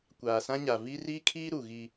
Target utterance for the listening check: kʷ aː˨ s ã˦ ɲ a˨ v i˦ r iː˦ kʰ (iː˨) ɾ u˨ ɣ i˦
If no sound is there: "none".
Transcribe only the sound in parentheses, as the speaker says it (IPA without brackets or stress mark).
iː˦